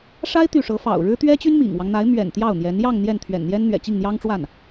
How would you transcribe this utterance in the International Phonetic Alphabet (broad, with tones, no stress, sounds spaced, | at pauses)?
ʂ a˥ ɪ̯ t̪ y˥˩ ʂ ɤ˧˥ f ɑ̰˨˩ ʊ̯ ɻ ɻ̩˥ t̪ ɥ ɛ˥ t͡ɕ y˥ n m ḭ˨˩ ŋ w ɑ˦ ŋ n̪ a˧˥ ɪ̯ m ɥ ɛ̰˨˩ n t̪ j ɑ˥˩ ʊ̯ n̪ j ɛ˧˥ n j ɑ˥˧ ŋ n̪ j ɛ˥˩ n t̪ʰ ɥ ɛ̰˨˩ n n̪ j ɛ˥ n n̪ ɥ ɛ̰˨˩ t͡ɕ i˥˩ ŋ n̪ j ɑ˥ ŋ ʈ͡ʂ w a˥˩ n